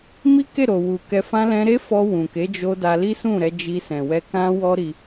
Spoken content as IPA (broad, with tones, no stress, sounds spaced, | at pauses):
m i˦ k e˦˨ ɾ o˨ w u˨ k ɛ˧ f ã˧ l ɛ̃˧ ɾ e˦ f ɔ˧ w ũ˨ k e˨˦ d͡ʒ o˧ d a˧ l i˦ s ũ˦˨ ɾ ɛ˧ d͡ʒ i˧ s ɛ̃˨ w ɛ˧ k ã˦ w ɔ˦ ɾ i˧